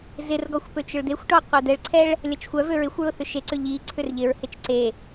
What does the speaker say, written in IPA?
z ɪ r ɡ ɔ xʷ p ø t͡ʃ ʊ ɭ d̪ e xʷ ʈ ɔ qʷ ɛ d̪ ɛ ɭ ǀʰ ɛ ɭ | lʲ ɐ t͡ʃ xʷ œ v ø ɹ ɪ xʷ ɹ ʊ θ ʏ ʃ e ǀ ʏ ʎ i ǀʰ ʏ r ʎ ɪ ɹ h ɪ t͡ʃ ǀ e

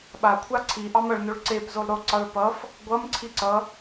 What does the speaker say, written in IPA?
ɓ a kʷʰ a ǀʰ i ʔ ɑ m ʌ ɭ n o ɭ ǀ e p z o lˠ ɾ o ǀ ɑ ɭ p ʌ f | ɡʷ ʌ m ǀʰ i ǀ ʌ

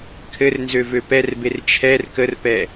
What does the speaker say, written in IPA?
kʰ ɘ r n z ø v ø p ɛ r b e r t͡ʃʰ ɛ r k ə r p ɛ

